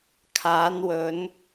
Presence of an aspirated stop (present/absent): present